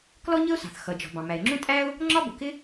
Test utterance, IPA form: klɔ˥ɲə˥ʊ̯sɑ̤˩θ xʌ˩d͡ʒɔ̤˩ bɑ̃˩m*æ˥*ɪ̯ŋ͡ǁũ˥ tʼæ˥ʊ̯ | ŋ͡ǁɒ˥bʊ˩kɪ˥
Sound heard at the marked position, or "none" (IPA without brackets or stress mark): æ˩